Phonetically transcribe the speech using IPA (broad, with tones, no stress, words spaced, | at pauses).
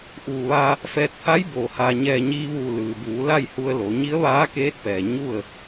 ʔuː˧˩ ʋa˧ | fɛː˧t̚ t̪ʰa˧˥j boː˧˩haː˧ ɲɛː˧˩ ɲiː˧ʋuː˧˩ lɯː˩buː˩˧ la˥˨jhu˧ə̯lo˩˧ ɲi˧˥ə̯ʋaː˧˥keː˧˥t̚pɛː˩ ɲu˥˨ə̯